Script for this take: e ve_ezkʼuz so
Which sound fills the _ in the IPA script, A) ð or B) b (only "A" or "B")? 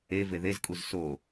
A